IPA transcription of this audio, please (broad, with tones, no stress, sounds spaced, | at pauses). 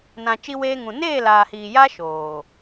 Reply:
n ã˨ t͡ʃ i˦ w eː˦ ŋ ũ˨ n eː˦˨ l aː˨ h iː˨ j a˦ ʃ oː˨